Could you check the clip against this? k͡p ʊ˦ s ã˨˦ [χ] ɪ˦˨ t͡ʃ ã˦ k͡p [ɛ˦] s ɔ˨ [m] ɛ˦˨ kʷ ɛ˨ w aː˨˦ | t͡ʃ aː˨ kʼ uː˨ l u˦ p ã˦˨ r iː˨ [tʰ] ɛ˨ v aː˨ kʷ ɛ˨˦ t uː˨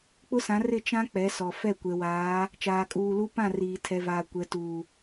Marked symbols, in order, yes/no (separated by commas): no, no, no, yes